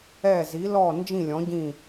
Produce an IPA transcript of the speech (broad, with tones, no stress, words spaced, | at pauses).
ɛ˦˨zi˨˦lɔ˦˨ nd͡ʒĩ˦˨lʲɔ̃˨˦ɟĩ˦˨